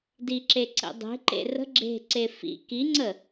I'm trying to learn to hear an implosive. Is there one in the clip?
no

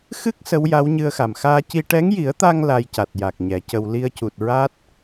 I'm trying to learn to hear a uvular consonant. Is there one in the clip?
no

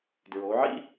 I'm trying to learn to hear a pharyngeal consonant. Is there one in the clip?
yes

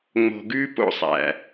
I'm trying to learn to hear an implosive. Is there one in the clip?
no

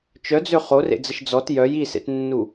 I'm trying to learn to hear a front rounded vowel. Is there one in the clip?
yes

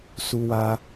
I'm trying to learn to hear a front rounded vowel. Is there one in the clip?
no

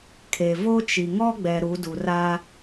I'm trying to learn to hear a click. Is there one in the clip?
no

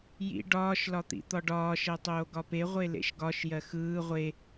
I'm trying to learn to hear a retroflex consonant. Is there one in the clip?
yes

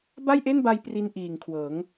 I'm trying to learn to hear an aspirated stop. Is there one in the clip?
yes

